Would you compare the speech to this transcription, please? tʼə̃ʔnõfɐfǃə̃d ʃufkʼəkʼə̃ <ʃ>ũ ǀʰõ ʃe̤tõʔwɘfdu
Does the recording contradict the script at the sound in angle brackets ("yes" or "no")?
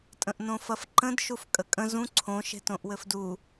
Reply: yes